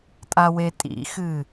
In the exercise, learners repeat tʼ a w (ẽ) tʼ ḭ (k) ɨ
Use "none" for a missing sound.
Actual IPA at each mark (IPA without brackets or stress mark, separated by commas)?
e, x